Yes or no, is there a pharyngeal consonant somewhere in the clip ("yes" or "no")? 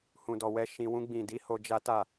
no